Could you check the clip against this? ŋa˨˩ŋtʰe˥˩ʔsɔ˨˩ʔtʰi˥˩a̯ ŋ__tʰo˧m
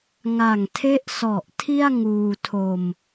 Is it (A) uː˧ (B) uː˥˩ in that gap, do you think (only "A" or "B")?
A